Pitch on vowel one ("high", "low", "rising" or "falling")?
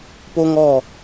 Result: high